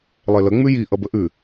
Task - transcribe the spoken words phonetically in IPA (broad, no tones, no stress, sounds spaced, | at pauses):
lˠ e l ə ŋ͡m ʉ j i ʔ ʌ b ə ʔ ʉ